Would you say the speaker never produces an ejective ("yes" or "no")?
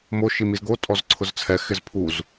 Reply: no